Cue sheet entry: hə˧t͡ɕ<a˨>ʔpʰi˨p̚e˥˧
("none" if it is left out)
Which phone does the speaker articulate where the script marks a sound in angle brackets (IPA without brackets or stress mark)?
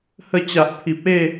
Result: a˨